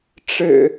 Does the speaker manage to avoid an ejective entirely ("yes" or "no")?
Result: yes